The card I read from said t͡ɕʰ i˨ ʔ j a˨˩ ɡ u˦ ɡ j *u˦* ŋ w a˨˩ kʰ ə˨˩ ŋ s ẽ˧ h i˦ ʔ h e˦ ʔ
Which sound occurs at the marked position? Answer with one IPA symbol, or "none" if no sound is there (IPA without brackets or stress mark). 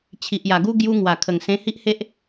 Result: u˦